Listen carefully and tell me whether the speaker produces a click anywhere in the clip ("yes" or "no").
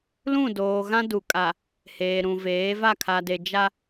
no